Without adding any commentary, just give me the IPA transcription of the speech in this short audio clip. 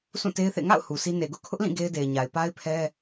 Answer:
sũ˦˨te˦ɪ̯θḛ˦˨ ŋa̰˦˨ʊ̯ hu˨sʰi˦ ne˨ ɡʊ˦ʔkʰʊ˦ʔlĩ˦˨ ɡe˦ɪ̯de˨ɪ̯ɲa˨ɪ̯ pa˦ɪ̯pʰɛ˦

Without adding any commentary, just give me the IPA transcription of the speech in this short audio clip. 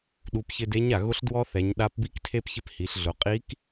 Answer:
ɗu˩˧pçɪ˧de˧˥ɲa˩ ɣʊ˧˥ɬ dwɔ˥θɛ˩˧ɲ ɗa˧˥pbi˥ktʰe˥p çɪ˥phi˩˧ɬɮʊ˩˧ qʼi˧˥k

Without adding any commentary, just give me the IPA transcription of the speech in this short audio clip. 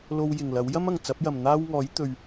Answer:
lo˧w jɪ˨˩ŋlɐ˨˥w jɐ˥mɐ˨˩ŋ t͡sɐ˨˥p̚jɐ˨˩mn̪aː˥wŋɔː˨˥j t̪ɵ˨ɥ

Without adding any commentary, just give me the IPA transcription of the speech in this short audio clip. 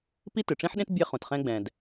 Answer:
pi˥tɨ˩ʈ͡ʂĩ˥ħɗẽ˥t bʲɛ˥χũ˩tχɛ̃˥ɡ͡bɛ̃˩d

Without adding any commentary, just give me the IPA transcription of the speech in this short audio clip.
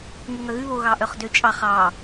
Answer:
ŋʉŋœɣʉ βo ɣɑʔœχdøt͡ʃʼɑ χɑ

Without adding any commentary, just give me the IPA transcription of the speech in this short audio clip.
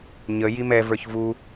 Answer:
ɲə jimɛ və˞çvu

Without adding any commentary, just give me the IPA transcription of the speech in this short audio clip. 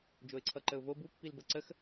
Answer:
d͡ʒoɪ̯ǀʰʌǃəʊ̯vo bupːilbʌ ǀəx

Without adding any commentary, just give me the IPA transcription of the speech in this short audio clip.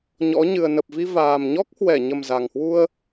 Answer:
ɲɔ̰˧˥ ɲɨ˨˩ə̯nə˨˩p̚vi˧vaː˨˩m ɲɔ˦˥k̚hwɛ˧˩ɲə˨˩m za˨˩ŋhwu˧ə̯

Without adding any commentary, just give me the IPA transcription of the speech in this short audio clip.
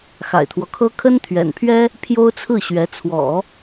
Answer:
xa̰˨˩ɪ̯t̪ʰwɔ˦kʰɤ˥ kʰə˥nt̪ʰɥɛ̰˨˩npʰɥɛ˥ | pʰjo˥ʊ̯t͡sʰɹ̩˥˩ɕɥɛ˧˥ t͡sʰwɔ̰˨˩˦

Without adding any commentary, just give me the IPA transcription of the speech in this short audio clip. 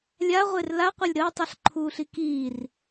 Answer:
lʲaʁʷer laqʷɐlʲ ɾəːtˤɐɬǃʰuːɬi kiːr

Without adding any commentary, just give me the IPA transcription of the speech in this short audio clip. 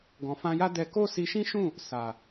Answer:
ɡɔ̃˨fã˧ja˦dɛ˧ ko˦si˧ʃĩ˦ʃũ˦˨ | sa˨

